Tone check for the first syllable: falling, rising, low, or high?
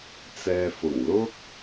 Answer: low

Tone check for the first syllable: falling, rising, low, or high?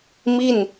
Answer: falling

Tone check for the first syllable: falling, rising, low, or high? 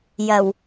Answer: low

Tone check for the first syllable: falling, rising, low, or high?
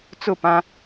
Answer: falling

